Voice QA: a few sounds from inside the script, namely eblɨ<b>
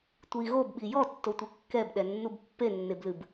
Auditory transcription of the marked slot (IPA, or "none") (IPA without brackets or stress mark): b